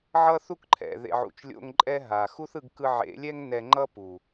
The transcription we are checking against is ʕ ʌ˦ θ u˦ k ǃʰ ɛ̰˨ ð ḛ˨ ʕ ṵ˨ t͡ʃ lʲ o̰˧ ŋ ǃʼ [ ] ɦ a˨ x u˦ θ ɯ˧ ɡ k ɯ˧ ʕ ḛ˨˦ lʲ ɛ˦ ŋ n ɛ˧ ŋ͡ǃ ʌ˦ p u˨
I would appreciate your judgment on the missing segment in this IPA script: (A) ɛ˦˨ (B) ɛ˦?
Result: B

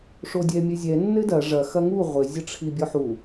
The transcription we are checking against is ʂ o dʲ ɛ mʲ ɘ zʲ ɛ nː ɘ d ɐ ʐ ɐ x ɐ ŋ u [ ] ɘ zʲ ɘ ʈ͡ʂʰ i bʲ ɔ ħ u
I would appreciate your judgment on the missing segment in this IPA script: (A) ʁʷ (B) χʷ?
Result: A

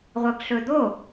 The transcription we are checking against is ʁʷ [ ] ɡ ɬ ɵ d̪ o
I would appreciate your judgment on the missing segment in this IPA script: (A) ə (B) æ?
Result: A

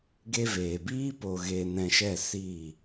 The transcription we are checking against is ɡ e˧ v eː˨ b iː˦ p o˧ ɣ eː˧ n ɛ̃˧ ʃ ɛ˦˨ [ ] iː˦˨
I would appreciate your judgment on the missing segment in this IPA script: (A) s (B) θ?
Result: A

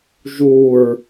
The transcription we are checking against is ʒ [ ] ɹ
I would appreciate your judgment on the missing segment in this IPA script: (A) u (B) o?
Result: A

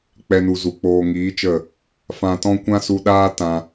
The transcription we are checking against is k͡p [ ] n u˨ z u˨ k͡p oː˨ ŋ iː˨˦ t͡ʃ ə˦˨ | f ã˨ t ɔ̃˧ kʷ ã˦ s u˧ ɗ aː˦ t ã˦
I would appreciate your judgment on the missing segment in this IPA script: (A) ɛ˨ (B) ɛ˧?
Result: B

